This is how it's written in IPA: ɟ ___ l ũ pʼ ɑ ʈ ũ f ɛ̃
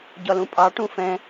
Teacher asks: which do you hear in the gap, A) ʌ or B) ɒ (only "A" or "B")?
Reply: B